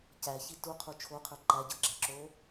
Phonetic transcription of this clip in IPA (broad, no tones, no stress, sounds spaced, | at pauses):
c æ ç i t u qʰ u t͡ʃʰ o qʰ ə˞ ǃ æ ɟ ə˞ ɡ͡ǁ æ ǁ o